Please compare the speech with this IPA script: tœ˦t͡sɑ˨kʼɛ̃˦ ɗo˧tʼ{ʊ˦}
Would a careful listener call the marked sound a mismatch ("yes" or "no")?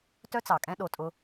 no